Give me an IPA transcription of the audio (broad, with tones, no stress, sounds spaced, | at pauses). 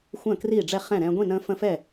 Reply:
xʷ ə̃ː˥˨ k r iː˥˨ ɖ͡ʐ ɛ˥˨ χ ɛ̃˥˨ ɾ ɛ̃ː˦ ɡʷ ĩ˥˨ n ə̃ː˦ f ə̃˦ f ɛ˥˨